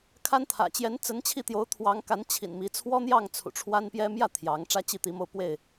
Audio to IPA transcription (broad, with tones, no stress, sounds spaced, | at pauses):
kʰ a˦ n t̪ʰ ä̰˨˩ t͡ɕ j ɛ˨˦ n t͡s ə˨˦ n t͡ɕʰ i˥˨ t̪ j o˨˦ ʊ̯ t̪ʰ w ɑ˨˦ ŋ k a˨˦ n t͡ɕʰ ḭ˨˩ n m i˨˦ t͡sʰ w ɔ˦ n̪ j ɑ˥˨ ŋ t͡sʰ ṵ˨˩ ʈ͡ʂʰ w a˦ n p j ɛ˦ m j ä˥˨ t̪ʰ j ɑ˨˦ ŋ ʈ͡ʂ ä˦ t͡ɕ i˥˨ t̪ i˨˦ m o˥˨ ʊ̯ p w e˥˨ ɪ̯